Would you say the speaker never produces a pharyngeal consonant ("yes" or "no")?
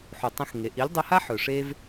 no